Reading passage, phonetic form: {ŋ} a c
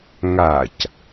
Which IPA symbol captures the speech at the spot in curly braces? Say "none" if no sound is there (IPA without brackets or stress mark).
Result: ŋ